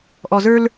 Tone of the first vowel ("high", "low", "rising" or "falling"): low